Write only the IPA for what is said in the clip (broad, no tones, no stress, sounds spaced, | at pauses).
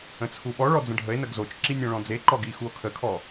ə̃ t͡sʰ u ɓ ɔ ɭ ɔ d͡z ə̃ ɖʱ ə e̯ n ə ɡ z o t͡ʃ ǁ i nʲ ɔ̃ ɭ ɔ̃ d͡z e ǃ ɔ ɡ i x u o̯ kʰ ə kʰ ɔ